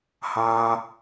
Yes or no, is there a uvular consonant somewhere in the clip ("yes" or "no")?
no